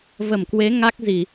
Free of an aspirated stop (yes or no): yes